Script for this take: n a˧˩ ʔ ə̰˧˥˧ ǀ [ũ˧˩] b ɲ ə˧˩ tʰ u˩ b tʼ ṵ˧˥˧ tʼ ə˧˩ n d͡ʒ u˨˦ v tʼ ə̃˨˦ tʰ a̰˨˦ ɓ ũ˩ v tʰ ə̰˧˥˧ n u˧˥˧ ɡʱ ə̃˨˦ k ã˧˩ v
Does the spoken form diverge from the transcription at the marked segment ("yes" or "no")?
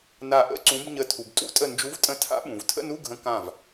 yes